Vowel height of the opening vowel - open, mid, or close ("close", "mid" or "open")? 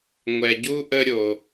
mid